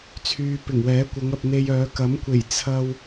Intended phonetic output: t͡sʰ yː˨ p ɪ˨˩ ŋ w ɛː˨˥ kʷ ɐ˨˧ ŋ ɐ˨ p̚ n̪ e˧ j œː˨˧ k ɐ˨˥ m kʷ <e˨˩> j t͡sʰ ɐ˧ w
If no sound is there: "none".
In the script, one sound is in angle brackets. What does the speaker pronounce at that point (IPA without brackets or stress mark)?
e˨˩